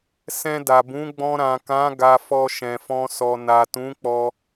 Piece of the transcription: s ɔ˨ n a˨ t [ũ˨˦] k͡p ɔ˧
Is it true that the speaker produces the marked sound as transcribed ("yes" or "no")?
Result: yes